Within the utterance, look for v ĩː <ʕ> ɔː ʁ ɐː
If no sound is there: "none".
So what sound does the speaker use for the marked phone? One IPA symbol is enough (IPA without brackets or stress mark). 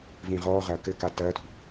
ʁ